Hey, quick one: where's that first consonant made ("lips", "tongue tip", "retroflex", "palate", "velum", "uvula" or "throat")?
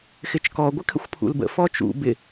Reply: velum